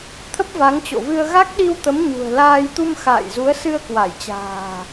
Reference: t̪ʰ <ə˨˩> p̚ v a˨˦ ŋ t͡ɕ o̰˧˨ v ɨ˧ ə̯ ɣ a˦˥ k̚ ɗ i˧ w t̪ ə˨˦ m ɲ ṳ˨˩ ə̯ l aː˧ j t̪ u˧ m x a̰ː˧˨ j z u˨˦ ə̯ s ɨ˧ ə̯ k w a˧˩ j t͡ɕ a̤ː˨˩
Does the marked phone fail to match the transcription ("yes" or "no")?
yes